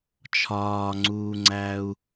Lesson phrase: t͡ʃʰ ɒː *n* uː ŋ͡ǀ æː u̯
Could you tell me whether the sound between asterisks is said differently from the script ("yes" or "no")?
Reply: yes